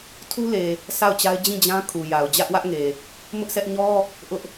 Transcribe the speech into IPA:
tʰ u˦ l e˨ | sʰ a˦˨ ʊ̯ t͡ɕ a˦ ɪ̯ d͡ʑ ĩ˦˨ d͡ʑ ã˦ kʰ u˨ j a˨ ʊ̯ d͡ʑ ä˦ ʔ w ä˦ ʔ ŋ e˨ | m ʊ˦ ʔ s ɛ˦ ʔ ɲ ɔ˦ | ʔ ʊ˦ ʔ

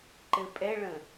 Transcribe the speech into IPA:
ǃ ɘ pʼ ɛ ɭ ə̃

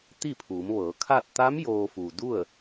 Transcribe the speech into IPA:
t̪ i˥˨ pʰ uː˩˧ m ʋ ɤː˩˧ kʰ a˥˨ t̚ t̪ a˧˥ m j oː˧ f u˩ d u˥˨ ə̯

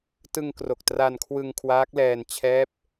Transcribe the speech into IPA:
t ɯ˧ ŋ k r o˨˩ k̚ t r a˧ n kʰ w ɯ˧ ŋ kʰ w aː˦˥ k̚ l ɛː˧ n t͡ɕʰ ɛː˦˥ p̚

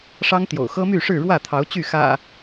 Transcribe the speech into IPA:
ʂ ɑ˦ ŋ t̪ j o̰˨˩ ʊ̯ x ɤ˦ m y˥˨ ʂ ɻ̩˥˨ ɻ w ä˥˨ t̪ʰ ɑ˨˦ ʊ̯ t͡ɕ y˥˨ x ä̰˨˩

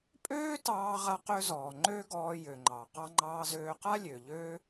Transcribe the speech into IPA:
pʼ øː˥ t ɑː˥ ʁ a˥ q ø˥ z ɔː˩ ŋ͡ǃ øː˥ ɡ ɔː˧ j ø˩ ŋ͡ǃ ɑ˩ q ɑ˧ ŋ͡ǃ ɑː˧ z øː˧ q a˥ lʲ ø˩ ʎ ø˥

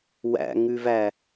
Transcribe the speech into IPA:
w æ̰ ŋ ʉ v æ

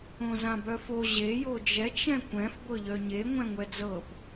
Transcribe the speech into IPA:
õ z ã b œ f o ʑ e j o d͡ʒ ɛ t͡ʃ ɛ̃ kʷ ɛ̃ f ɡʷ ɤ ʎ œ ɲ e ŋʷ ɛ̃ ŋʷ ɛ d͡z ɤ p

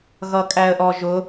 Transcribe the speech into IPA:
ɣ ʌ kʼ æ ə̯ ʔ ɔ ʒ ʊ

